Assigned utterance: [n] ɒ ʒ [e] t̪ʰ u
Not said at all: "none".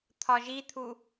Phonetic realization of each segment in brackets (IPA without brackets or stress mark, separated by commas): t̪ʰ, i